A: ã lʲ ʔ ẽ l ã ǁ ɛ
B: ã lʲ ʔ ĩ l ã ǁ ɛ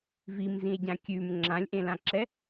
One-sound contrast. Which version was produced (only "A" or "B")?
A